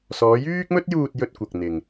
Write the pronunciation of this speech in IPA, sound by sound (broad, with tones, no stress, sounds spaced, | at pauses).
s ɔː˨˧ j yː˥ k̚ m ɵ˥ t̚ j uː˧ t̚ j ɵ˧ t̚ kʷ ɐ˨ k̚ n̪ ɪ˨ ŋ